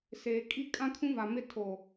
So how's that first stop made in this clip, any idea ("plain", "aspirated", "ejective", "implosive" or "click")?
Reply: ejective